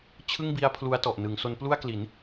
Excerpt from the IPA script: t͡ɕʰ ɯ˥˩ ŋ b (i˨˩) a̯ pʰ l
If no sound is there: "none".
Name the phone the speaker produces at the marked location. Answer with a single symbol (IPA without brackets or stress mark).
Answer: i˦˥